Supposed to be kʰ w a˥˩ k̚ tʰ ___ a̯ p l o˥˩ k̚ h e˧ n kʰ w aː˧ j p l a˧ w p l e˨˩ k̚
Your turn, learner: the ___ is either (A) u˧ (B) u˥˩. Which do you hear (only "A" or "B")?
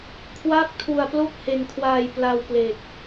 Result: A